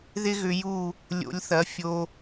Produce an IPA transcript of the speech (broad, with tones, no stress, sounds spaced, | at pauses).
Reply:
ð ɪ˦ ɣ ʏ˧ j u˦˨ | lʲ o̰˧ lʲ θ ɐ˨˦ fʲ o˧